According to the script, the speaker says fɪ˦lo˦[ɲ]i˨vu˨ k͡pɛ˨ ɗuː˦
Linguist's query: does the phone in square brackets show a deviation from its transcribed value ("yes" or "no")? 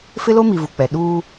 yes